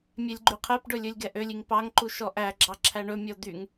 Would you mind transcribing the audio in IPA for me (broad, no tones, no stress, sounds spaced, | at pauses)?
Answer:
mʲ ɛ lʲ ɡ͡ǃ y qʰ ɛ p ɖ ɵ lʲ ɵ lʲ ɡ ɛ ʔ ø lʲ i ŋ p ɑ ŋ ǃ u ʃ ɔ ʔ æ ɡ͡ǁ ɑ ǁʰ æ ɳ ɵ mʲ ɔ d̪ y ŋ